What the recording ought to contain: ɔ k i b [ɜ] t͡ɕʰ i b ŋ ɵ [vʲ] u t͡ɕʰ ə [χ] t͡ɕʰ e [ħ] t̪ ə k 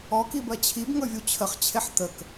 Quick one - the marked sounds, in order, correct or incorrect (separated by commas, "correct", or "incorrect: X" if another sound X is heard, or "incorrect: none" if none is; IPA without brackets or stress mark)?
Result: correct, correct, correct, correct